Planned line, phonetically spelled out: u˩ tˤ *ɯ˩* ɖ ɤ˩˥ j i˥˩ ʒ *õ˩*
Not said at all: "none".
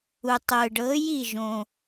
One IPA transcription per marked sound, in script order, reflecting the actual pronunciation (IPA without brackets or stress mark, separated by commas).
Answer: ɯ˩, õ˩